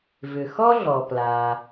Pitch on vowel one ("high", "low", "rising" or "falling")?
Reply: low